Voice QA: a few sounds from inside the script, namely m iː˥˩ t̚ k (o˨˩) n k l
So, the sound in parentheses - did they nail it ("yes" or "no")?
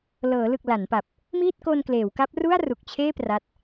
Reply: no